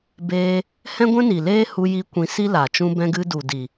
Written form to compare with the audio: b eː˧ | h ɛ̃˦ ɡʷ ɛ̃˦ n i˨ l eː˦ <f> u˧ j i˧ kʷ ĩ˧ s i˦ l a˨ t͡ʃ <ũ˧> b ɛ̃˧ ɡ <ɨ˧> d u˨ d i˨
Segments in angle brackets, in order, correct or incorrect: incorrect: h, correct, correct

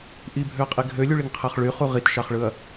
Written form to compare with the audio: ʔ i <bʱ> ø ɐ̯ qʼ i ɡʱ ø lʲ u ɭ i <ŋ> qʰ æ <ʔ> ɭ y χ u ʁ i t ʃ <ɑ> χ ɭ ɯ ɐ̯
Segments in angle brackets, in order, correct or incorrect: correct, correct, incorrect: χ, correct

